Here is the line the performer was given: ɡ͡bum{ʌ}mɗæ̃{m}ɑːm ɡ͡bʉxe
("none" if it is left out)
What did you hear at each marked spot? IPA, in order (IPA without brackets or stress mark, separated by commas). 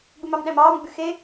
ɑ, m